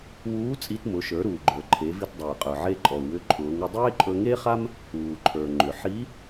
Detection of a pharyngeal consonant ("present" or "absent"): present